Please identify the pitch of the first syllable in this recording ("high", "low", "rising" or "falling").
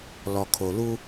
low